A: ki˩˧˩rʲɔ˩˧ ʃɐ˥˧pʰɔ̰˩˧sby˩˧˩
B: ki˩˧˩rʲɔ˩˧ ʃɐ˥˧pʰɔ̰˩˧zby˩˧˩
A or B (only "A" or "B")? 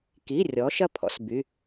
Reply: A